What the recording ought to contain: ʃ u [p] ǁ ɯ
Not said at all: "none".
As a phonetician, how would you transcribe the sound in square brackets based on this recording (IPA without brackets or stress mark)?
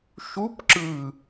p